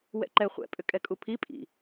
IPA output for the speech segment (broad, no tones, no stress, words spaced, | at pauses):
wɛ̰ǃɛ χʷɛ̰ pʼʏkʼɛkʼupʰi pʼḭ